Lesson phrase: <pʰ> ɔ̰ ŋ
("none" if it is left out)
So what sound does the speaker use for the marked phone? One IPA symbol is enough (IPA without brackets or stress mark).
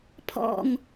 pʰ